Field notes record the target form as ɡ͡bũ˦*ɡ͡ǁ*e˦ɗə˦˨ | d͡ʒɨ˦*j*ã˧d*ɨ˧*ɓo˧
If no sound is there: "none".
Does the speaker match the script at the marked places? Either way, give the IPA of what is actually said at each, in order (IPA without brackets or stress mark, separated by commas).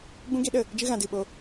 ɡ, ɣ, ɨ˧